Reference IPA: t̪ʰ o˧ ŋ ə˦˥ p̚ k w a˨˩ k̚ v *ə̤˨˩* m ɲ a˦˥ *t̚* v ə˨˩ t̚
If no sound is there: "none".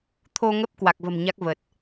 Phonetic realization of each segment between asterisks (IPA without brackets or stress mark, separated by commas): ə̤˨˩, k̚